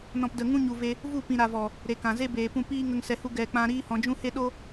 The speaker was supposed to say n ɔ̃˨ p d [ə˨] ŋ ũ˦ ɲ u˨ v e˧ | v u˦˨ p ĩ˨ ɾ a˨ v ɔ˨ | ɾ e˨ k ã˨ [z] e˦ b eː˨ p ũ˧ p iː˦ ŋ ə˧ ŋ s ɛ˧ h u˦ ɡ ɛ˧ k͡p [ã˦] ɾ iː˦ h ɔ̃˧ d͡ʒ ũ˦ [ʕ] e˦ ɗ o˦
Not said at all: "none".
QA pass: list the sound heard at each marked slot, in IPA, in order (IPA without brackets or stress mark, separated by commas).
ə˨, z, ã˦, h